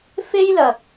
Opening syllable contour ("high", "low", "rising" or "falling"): high